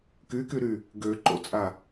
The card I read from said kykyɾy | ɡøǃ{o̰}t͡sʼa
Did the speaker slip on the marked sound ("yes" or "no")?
no